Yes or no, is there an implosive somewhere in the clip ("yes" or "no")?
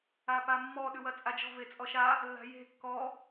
yes